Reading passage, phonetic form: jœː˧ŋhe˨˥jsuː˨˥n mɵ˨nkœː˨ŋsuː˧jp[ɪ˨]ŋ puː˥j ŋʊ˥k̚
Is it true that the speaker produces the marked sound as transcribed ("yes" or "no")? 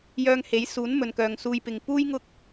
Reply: yes